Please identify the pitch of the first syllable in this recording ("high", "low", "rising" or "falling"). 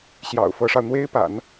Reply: low